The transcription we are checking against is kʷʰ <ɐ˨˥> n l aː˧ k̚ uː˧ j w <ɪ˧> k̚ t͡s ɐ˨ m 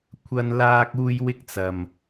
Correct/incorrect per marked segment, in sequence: incorrect: ɐ˧, correct

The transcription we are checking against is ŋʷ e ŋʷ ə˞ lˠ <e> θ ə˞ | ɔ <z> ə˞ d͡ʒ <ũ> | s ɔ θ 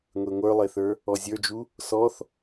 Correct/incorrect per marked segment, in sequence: correct, incorrect: zʲ, incorrect: u

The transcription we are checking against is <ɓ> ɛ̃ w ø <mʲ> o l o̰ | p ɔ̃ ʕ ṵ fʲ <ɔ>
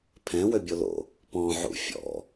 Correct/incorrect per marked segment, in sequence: incorrect: pʰ, incorrect: bʲ, incorrect: ɔ̰

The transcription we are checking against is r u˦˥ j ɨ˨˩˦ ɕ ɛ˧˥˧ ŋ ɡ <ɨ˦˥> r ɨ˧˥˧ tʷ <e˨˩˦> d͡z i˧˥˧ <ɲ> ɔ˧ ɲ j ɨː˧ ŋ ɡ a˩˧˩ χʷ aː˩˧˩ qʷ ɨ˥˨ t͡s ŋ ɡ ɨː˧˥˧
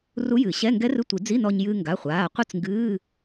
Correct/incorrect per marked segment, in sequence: incorrect: ɛ˦˥, incorrect: i˨˩˦, incorrect: n

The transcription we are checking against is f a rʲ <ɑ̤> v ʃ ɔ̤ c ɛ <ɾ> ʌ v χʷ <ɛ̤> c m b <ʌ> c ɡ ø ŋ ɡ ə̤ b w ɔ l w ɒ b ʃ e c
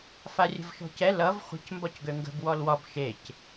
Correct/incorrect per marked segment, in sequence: incorrect: ə̤, incorrect: l, incorrect: ə̤, incorrect: ɒ

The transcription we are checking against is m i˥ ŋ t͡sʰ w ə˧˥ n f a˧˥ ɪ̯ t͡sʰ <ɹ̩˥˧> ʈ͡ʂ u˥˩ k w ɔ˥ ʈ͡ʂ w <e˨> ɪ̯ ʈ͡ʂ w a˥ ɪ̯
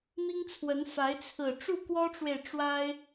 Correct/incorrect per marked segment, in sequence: incorrect: ɹ̩˨˩, correct

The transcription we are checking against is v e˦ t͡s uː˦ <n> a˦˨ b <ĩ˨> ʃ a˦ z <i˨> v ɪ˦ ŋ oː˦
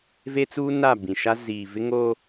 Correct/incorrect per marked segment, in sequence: correct, correct, incorrect: iː˨

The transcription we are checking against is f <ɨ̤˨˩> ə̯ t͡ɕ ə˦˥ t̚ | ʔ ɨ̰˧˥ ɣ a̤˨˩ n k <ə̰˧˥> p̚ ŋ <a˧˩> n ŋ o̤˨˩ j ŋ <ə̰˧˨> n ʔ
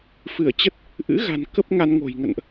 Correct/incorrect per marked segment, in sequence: incorrect: ɨ˧˩, incorrect: ə˦˥, incorrect: a˧, correct

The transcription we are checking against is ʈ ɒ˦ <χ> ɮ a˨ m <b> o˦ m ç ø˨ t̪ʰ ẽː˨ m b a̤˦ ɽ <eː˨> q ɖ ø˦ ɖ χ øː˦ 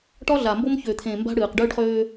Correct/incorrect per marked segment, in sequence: incorrect: none, correct, incorrect: ɨː˨

